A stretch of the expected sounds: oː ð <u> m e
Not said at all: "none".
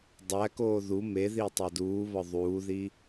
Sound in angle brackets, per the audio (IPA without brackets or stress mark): u